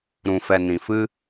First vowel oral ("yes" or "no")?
no